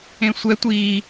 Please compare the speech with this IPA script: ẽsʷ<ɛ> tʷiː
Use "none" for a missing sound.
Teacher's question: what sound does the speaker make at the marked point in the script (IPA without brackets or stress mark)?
ɛ